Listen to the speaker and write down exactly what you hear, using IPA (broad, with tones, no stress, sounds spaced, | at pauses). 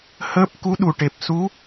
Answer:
h əː˦˥ p̚ k u˧˥ ɗ u˨˩ ʈ e˨˩ p̚ s u˧˥